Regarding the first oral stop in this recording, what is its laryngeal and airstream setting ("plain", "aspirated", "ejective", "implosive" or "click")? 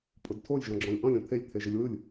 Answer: ejective